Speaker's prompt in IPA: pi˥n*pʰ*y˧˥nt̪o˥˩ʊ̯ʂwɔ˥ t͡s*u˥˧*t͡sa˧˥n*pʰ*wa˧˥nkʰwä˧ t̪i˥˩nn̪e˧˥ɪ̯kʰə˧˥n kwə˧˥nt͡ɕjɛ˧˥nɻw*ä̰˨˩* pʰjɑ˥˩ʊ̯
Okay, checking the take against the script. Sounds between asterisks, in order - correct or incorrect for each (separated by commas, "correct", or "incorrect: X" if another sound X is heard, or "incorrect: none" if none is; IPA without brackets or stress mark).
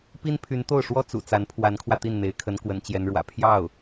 correct, incorrect: ṵ˨˩, correct, correct